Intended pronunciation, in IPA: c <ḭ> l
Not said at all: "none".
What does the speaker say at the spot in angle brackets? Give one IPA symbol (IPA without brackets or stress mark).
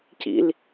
ḭ